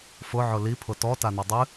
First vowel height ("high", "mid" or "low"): high